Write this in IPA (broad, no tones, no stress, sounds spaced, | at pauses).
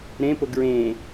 ɾ ẽ p o ɡ ɹ ẽ